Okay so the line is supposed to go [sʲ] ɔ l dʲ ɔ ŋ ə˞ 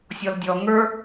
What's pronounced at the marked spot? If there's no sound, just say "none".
sʲ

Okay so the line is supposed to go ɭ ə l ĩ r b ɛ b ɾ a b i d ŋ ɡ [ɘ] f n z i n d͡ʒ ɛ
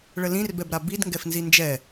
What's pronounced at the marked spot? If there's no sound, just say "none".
ɛ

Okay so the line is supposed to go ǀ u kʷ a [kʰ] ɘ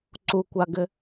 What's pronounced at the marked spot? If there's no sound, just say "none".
ɡ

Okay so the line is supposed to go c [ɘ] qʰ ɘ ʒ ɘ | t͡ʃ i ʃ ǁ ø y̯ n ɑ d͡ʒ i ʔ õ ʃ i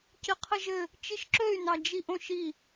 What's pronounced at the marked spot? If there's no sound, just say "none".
ɘ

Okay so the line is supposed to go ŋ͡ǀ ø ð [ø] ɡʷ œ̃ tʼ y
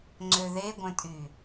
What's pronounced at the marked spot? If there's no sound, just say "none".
e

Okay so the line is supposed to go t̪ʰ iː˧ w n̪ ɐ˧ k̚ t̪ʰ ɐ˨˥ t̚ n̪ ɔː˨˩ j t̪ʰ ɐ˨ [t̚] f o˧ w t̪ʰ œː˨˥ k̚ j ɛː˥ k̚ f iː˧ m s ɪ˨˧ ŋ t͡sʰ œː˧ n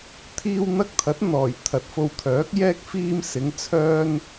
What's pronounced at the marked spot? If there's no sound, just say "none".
t̚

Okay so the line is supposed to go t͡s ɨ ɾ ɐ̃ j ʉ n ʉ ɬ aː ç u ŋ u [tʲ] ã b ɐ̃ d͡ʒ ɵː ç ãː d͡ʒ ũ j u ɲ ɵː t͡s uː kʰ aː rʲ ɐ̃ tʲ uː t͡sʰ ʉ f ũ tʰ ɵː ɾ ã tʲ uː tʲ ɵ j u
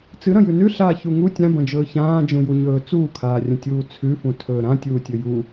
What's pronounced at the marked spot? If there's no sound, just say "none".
tʲ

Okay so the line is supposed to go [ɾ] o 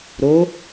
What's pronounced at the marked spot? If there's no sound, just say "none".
ɾ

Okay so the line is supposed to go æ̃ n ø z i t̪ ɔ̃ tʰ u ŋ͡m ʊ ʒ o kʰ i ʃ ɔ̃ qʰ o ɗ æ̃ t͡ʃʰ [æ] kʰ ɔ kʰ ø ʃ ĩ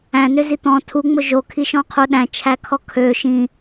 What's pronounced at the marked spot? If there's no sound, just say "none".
æ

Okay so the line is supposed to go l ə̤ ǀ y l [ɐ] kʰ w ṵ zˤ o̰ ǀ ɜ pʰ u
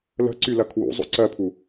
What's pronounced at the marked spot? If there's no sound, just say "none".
ɐ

